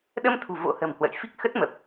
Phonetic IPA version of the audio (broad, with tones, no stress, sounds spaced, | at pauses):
ɗ ə˧ m t̪ʰ ṳ˨˩ v o̰˧˥ h ə̤˨˩ m h w ə̰˧˨ j f i˦˥ k̚ x ə˦˥ t̚ m ə˨˩ p̚